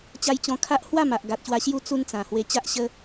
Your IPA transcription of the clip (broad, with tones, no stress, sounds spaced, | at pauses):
t͡ɕ a˧ j t͡ɕ ɔ̃˧ kʰ a˦ ʔ h w a˥˧ m a˨ ʔ ɡ a˨ t̚ ɕ w a˧ ɕ j u˦ t͡s u˦ n t͡s ã˨˩ h w e˧ t͡ɕ a˦ ʔ ɕ ə˦